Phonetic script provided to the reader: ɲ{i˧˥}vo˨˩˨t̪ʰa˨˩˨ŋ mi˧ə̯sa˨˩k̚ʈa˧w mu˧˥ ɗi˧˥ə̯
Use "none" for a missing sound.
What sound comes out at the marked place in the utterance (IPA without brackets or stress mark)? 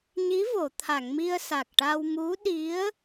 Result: i˧˥